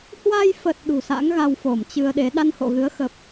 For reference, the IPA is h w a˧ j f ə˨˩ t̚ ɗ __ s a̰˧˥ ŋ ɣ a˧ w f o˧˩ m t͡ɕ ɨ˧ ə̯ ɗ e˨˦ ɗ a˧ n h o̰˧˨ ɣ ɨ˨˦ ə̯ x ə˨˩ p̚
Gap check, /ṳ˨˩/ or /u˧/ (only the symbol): ṳ˨˩